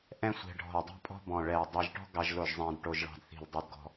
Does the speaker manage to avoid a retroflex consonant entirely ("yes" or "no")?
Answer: no